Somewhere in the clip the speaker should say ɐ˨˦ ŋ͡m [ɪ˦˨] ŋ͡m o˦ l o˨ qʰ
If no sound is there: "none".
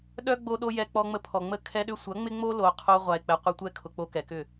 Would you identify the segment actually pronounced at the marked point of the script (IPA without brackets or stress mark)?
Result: ɪ˦